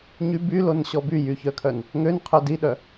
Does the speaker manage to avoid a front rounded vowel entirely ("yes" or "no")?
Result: no